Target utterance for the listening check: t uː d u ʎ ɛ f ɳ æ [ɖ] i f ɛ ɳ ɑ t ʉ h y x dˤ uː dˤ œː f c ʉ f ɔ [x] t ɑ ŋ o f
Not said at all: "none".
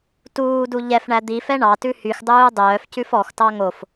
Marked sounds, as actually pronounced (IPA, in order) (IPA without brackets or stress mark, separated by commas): d̪, x